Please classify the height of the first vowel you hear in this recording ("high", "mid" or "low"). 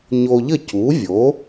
mid